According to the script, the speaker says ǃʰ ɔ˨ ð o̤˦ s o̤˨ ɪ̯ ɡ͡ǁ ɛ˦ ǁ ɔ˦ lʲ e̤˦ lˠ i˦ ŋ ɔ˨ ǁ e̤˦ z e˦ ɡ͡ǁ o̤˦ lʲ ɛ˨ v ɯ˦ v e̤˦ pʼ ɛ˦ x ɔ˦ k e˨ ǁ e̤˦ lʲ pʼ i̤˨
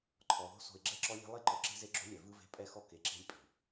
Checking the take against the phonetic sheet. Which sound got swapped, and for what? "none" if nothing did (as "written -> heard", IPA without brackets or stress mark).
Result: ŋ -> ǃ